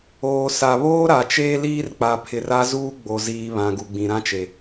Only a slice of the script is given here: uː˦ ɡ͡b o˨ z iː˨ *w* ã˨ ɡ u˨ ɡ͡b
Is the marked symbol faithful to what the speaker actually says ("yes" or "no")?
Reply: no